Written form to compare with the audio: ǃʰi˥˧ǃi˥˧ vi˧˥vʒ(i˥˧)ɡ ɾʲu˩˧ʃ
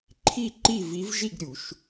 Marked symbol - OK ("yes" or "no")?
yes